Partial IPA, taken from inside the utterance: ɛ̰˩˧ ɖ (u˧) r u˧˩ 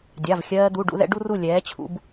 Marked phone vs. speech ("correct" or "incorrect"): correct